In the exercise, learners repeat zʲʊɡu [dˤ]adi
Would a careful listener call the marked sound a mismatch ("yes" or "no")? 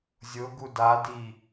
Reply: yes